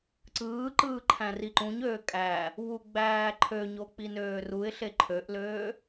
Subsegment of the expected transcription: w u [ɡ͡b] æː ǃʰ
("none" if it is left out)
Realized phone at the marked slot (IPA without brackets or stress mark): ɡ͡b